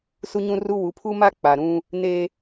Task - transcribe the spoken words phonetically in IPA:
su˦ɲũ˦ru˦ wu˨˦pʰu˦ma˦ k͡pa˨ɾũ˦ | ne˦

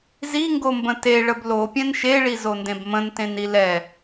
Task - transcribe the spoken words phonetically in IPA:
ziŋɡombə̃ teɭəb lopʲɛ̃n ʃeɭizondẽb mə̃ntẽni lɛ

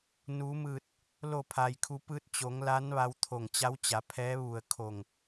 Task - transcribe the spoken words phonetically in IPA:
nu˩˧mɯː˧˩t̚ | lo˧˩pʰa˩jkʰu˩˧ pɯː˧t̚t͡ɕo˩˧ŋ la˧˥nʋa˧wt̪ʰo˧˩ŋ t͡ɕa˧˥wt͡ɕa˩˧pʰɛː˧˥ ʋu˧˩ə̯kʰo˧˩ŋ

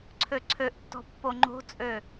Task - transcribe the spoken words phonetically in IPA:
ǀʰøǀʰøʔtːɔ̤ pːoŋ͡ǃo̤t͡sʼø

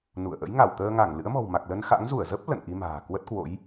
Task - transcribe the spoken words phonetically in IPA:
nṵ˧˨ə̯ ʔə̰˧˥jŋa˧˩wt̪əː˧ŋa˧˩ŋ lɨ̰˧˥ə̯mɔ̤˨˩wma˨˩k̚ lə˧nxa̰˧˥ŋ zu˧˩ə̯zə˦˥p̚ lə̰˧˨nʔi˧ma̤ː˨˩ kwə˦˥t̚kwo̰˧˥j

